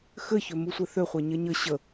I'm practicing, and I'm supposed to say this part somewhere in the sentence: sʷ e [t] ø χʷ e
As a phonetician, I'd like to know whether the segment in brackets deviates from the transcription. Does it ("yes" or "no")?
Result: yes